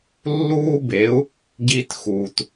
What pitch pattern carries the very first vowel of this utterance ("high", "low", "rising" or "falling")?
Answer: high